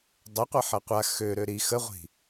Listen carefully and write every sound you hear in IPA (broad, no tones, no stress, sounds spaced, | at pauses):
dˤ ə qʷ ɐ ħ ɐ qʷ a x ø ɾ ø ɾ i x ə ʁʷ i̤